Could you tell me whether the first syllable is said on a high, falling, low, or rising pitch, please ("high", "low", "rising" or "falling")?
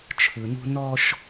low